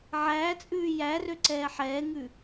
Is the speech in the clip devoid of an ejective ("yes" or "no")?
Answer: no